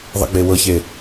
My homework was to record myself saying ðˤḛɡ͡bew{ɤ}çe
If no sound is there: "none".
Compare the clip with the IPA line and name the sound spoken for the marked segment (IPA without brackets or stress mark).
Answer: ɤ